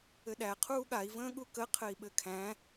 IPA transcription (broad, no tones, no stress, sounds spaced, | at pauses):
ɘ ɗ æ qʰ uː ɠ a i̯ v ə̃ː ɠ u k ə qʰ ɘ i̯ ɓ ɘ kʰ æ̃